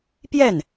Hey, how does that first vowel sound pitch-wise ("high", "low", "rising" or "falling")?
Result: falling